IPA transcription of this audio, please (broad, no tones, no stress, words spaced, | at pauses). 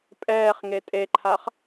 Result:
pʼɛːχ ŋetʼeǃʰaχ